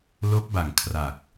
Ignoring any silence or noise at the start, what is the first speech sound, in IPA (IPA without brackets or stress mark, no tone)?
l